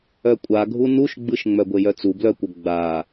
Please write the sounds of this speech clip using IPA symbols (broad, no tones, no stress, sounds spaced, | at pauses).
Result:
œ kʷʼ a ɡʱ u n u ʃ ɡ͡b ɯ ʃ ŋ͡m œ ɡʷ e j œ t͡s u b l œ kʷ œ ɡ͡b a